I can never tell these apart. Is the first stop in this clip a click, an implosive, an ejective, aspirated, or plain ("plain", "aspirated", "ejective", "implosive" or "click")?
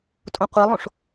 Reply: ejective